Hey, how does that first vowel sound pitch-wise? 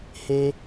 high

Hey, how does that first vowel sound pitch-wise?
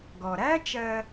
low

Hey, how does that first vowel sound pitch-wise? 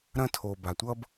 high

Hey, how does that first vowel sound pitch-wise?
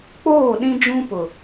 falling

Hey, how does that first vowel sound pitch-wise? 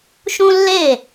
high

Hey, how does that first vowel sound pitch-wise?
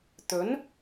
rising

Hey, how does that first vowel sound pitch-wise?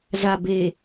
low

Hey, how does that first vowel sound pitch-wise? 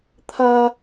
high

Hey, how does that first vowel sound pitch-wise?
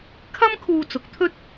high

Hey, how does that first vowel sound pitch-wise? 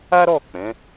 high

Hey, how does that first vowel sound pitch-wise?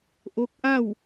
rising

